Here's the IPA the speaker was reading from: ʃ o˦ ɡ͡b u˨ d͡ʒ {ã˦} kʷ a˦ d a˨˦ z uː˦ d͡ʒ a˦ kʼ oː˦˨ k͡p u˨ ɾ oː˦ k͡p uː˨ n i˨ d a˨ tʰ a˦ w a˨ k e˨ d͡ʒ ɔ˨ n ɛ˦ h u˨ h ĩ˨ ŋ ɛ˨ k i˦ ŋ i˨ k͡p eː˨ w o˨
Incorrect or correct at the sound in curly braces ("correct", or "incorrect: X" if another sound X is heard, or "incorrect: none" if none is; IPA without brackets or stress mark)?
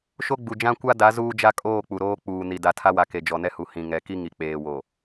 correct